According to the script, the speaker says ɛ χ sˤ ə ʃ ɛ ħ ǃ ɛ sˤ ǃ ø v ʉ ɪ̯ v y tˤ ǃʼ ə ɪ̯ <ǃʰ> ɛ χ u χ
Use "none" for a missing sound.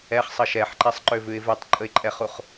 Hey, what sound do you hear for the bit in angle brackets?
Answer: ǃʼ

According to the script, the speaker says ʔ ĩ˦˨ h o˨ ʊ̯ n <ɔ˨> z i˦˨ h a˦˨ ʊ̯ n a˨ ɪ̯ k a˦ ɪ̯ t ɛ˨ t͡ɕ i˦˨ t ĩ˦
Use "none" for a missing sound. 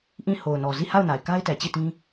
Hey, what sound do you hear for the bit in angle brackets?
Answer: ɔ˨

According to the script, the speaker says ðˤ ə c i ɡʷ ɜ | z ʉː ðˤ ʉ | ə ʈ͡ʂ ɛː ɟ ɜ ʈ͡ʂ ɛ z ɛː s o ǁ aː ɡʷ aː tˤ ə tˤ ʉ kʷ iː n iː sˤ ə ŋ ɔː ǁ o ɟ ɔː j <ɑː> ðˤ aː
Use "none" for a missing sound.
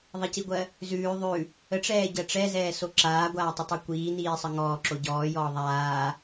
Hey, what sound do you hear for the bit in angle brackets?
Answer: ɔː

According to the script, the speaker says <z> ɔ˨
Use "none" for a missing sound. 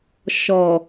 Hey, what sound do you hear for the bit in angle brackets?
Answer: ʃ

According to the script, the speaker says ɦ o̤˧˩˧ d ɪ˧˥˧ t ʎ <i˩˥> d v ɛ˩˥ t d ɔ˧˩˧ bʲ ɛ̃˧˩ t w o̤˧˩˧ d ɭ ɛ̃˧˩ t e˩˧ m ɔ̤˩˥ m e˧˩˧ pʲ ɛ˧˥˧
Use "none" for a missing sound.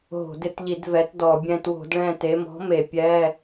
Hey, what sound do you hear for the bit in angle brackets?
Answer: i˧˩˧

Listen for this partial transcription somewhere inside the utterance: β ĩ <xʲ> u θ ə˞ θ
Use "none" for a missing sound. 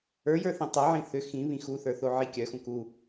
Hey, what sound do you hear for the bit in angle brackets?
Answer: x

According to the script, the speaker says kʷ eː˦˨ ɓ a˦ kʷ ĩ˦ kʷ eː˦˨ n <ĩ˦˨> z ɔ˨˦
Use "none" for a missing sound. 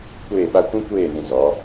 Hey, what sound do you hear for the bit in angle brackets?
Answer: ĩ˨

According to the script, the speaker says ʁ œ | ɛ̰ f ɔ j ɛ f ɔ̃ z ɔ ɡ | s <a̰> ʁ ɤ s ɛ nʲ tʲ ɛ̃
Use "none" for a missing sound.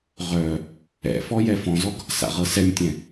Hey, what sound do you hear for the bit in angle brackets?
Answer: a̰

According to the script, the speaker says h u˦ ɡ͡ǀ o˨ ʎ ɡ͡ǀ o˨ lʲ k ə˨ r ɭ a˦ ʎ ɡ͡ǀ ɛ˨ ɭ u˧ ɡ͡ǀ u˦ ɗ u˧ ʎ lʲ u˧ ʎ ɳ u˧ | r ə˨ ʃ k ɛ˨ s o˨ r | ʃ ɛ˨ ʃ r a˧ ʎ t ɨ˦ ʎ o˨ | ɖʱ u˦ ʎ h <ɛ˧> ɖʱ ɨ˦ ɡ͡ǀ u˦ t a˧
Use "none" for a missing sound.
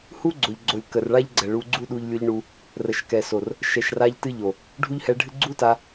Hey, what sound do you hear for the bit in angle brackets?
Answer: ɛ˧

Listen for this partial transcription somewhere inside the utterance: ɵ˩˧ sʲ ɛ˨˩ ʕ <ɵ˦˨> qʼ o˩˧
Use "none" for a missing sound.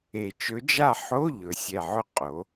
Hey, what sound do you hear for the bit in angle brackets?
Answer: ɵ˦˨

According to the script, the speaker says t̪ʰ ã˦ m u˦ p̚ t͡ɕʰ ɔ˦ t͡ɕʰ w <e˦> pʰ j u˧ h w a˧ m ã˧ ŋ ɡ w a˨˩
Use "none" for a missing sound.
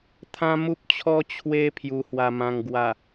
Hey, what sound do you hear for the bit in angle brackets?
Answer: e˦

